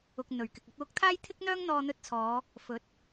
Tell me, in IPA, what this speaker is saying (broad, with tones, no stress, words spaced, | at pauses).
ʊ˨k̚ n̪ɵ˨˩ɥkɪ˨k̚ ɐ˧t̚wʊ˧k̚t̪ʰaː˥j t̪ʰɪ˥k̚n̪œː˥ŋn̪ɔː˧ n̪ɵ˧t̚t͡sʰɔː˨˧ | fɵ˨˥t̚